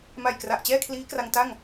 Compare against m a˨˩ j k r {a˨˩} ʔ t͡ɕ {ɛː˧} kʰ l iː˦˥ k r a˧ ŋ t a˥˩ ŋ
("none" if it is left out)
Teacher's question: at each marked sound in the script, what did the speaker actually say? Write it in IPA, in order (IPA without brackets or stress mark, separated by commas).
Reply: a˨˩, ɛː˥˩